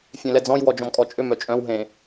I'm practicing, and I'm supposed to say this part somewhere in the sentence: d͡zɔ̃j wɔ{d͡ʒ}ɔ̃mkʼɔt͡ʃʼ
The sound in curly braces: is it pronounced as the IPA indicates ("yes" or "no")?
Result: yes